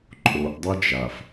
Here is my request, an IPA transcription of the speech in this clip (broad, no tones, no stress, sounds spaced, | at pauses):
ǃʼ o ʔ dˤ ɛ d͡ʒ a f